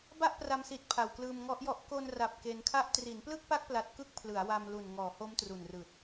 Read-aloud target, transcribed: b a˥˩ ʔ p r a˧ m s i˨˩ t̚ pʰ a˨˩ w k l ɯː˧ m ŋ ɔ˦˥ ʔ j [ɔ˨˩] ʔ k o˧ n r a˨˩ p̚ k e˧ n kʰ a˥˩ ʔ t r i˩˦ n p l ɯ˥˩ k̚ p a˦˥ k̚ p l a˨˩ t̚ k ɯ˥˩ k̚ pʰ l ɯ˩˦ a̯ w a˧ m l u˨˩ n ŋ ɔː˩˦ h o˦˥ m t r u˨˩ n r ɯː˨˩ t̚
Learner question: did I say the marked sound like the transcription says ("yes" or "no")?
no